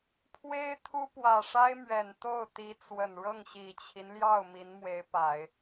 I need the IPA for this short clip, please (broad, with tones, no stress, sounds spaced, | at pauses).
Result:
pʰ w e˥ ɪ̯ t̪ʰ u˥ p w ä˨˩ ʂ a˥ ɪ̯ m ɥ ɛ˨˩ n t̪ o˥˩ ʊ̯ t̪ i˧˥ t͡s w ə˨˩ n ɻ ɤ˥˩ ŋ ɕ i˨˩ t͡ɕʰ i˦ n l j ɑ˥˩ ʊ̯ m i˧˥ n m w e˧˥ ɪ̯ p a˨˩˦ ɪ̯